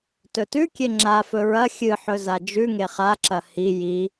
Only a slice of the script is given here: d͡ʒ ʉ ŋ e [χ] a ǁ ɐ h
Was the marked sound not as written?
no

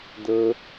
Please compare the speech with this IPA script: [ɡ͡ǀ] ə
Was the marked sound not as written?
yes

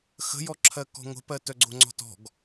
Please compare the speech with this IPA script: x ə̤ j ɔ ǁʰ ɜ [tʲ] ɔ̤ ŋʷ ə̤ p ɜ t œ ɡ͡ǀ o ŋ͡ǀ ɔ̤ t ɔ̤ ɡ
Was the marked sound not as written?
yes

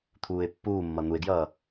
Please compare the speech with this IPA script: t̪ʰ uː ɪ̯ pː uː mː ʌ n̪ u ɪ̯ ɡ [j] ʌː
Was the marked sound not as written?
no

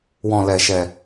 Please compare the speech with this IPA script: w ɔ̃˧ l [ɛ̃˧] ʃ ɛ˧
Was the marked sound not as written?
yes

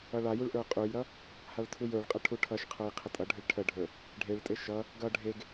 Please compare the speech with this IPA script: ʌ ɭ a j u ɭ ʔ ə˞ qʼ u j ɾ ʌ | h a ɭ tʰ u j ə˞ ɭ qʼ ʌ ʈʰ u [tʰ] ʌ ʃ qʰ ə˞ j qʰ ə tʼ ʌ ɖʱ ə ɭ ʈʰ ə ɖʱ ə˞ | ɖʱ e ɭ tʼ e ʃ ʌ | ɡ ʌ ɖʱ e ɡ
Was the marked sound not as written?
yes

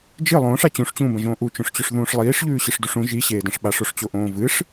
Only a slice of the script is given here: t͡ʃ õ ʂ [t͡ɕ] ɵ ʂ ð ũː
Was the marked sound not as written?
no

